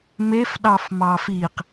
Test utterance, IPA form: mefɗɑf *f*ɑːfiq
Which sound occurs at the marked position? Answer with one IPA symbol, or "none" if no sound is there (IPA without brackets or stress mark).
m